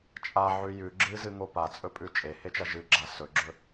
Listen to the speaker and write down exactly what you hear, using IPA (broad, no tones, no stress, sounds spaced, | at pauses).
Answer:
t͡ʃʼ a ʕ ʉ j ʉ ɡ͡ǁ ɨ z ɨ ŋ o p a t͡sʼ ɵ pʼ ʉ t͡ʃʼ e h e t͡ʃ ɐ ʒ ɨ ɡ͡ǁ a s ɵ ɡ͡ǁ ɵ